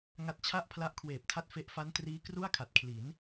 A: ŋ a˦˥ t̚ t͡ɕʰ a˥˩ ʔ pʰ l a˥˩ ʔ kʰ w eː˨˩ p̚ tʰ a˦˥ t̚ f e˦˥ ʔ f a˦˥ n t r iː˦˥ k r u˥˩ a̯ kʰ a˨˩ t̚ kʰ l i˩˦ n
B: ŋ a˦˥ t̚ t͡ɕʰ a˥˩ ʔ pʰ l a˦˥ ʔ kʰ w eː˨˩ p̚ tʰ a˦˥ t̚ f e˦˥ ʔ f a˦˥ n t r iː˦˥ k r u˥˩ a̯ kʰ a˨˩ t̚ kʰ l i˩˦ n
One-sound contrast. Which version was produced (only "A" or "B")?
B